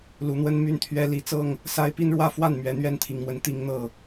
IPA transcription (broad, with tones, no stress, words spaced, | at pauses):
lu˨˦n̪wə˦n my˦nt̪ʰɥɛ˦ li˨˦t͡sɤ˥˨ŋ | sa˦ɪ̯ pi˦nɻwä˥˨fwa˥˨n mɥɛ˨˩n̪ɥɛ˥˨nt̪ʰi˨˩ŋmwə˨˦n t̪i˨˦ŋn̪ɤ˨˩